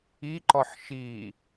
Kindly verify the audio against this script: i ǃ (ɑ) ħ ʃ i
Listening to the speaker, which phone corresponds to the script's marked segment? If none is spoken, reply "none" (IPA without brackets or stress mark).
ɔ